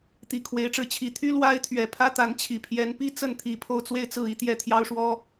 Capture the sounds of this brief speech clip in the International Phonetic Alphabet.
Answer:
t̪ i˨˩ kʰ w e˧˥ ɪ̯ ʈ͡ʂ ɻ̩˧˥ t͡ɕʰ i˨˩ t̪ʰ y˥ l w a˥ ɪ̯ t̪ʰ ɥ ɛ˨˩ pʰ ä˥ t̪ a˧˥ n t͡ɕʰ i˨˩ pʰ j ɛ˧˥ n p i˥ t͡s ə˥˩ n t̪ʰ i˨˩ pʰ o˥˧ ʊ̯ t͡s w e˥˧ ɪ̯ t͡s ɹ̩˥˧ i˥˧ t̪ j ɛ˥˩ t̪ʰ j ɑ˥ ʊ̯ ʂ w ɔ˥

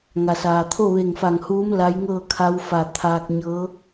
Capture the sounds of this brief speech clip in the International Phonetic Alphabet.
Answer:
ŋ a˩ s aː˩ t̪ʰ o˥˨ ʋ e˧˩ ŋ f a˧˩ ŋ h uː˧˥ m l a˧˥ j ŋ ɤː˥˨ kʰ a˧˥ w f a˩ t̪ʰ aː˧ k̚ ɲ ɤː˧˥

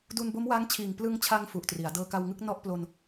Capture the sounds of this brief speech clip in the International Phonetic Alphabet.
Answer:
d u˧ n b o˦˥ m w a˦˥ ŋ t͡ɕʰ iː˨˩ ŋ p l ɯ˧ ŋ t͡ɕʰ a˧ ŋ f u˨˩ ʔ t r i˩˦ a̯ d ɤː˧ k a˧ w ŋ ɯ˥˩ k̚ n ɔ˥˩ ʔ p l o˧ n

